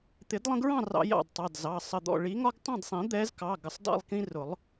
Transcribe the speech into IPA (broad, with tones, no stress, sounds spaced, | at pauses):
t̪ ɪ˨˩˦ d lˠ ə̃˦ ɡ ɹ ɑ̃˥˨ r ɑ̰˦ j ɑ̰˥˨ d tˤ ɑ˩˧˩ d z ɑ˩˧˩ sˤ ə˧˩ d̪ ɔ̰˥˨ ɭ i˨˦ ŋ ɒ˦ ɡ tˤ ɑ̃˥˨ d sˤ ĩ˨˩˦ d̪ ɛ˨˦ z k ɑ˩˧˩ ɡ ə˧˩ sˤ d ɑ̰˥˨ lˠ k ĩ˦ r ʊ˨˩˦ lˠ